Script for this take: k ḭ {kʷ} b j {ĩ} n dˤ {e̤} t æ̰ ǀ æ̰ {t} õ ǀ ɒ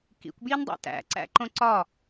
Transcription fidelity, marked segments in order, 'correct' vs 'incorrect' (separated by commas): correct, incorrect, incorrect, incorrect